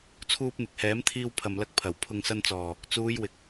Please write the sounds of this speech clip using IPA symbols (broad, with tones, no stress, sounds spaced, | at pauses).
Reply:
t͡sʰ uː˧ p̚ n̪ ɪ˨ k̚ h ɛː˨˥ m t̪ʰ iː˧ w pʰ ɐ˨ m l ɐ˧ k̚ pʰ ɐ˨˩ w pʰ ʊ˨ ŋ s ɐ˧ n t͡s ɔː˨˩ | t͡s uː˨˧ j w ɪ˨ k̚